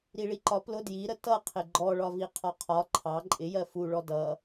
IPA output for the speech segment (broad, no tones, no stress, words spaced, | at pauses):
ɾiɭiǃɒ plʊ djiɾə tʌ qʰɪɡ͡ǃɔɭɒvi qʰɒqʰɒ ǃʰɑ ǃʼɪjɜ fuɭɔ dʌ